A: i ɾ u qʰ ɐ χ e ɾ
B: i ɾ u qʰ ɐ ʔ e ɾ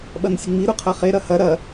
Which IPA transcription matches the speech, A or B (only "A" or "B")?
A